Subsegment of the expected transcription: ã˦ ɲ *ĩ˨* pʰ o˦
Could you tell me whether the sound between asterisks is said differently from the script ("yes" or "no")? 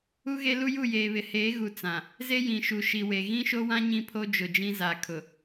yes